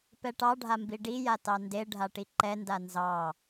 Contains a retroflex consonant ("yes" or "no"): yes